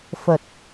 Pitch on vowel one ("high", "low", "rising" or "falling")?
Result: low